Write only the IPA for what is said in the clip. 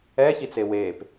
ɛ ç i t͡s e w eː p

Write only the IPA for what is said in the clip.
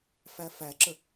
f æ f æ ǁ ə

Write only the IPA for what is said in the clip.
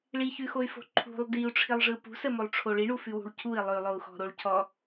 ɭ i ç ʉ x o y̯ f o̤ ǃʰ ṳ lˠ d i u̯ ʈ͡ʂʰ i lˠ ʐ ɯ p ṳ s ə m o lˠ ʈ͡ʂʰ o ɭ i ɳ u f ʉ w ṳ ɭ cʰ u i̯ lˠ ʉ lˠ o u̯ x ɔ̤ ɾ o ɭ cʰ ɔ

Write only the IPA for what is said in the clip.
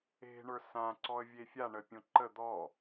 e̤ ɳ ə˞ s ã ǀ ɔ ə̯ vʲ e fʲ a ɳ ə pʲ õ ǃ ə d̪ ɔ

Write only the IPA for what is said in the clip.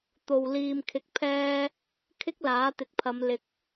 t̪ o˨ w l iː˨ m kʰ ɪ˨ k̚ pʰ ɛː˧ | kʰ ɪ˥ k̚ l aː˨˥ t̪ ɪ˨ k̚ pʰ ɐ˨˧ m l ɪ˨ k̚

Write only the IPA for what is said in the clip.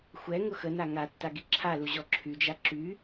xʷ ɛ ŋ ʊ x ə n a ŋ a tː a ɡ i ǁʰ a l u ʑ ɔ ǁʰ y d͡ʒ a ǁ y

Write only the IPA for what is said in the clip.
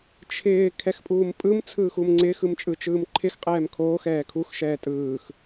t͡ʃʰ ɪː kʰ ɛ x pʼ uː m pʼ ɯ m t͡sʰ ɯː x u m ŋ͡ǀ ɪː x ɯ m t͡ʃʼ ɯ t͡ʃ ɯː m ǃʰ ɪ x qʼ ɛː m kʰ oː x ɛː kʰ u x ʃ ɛː tʼ ɯː x

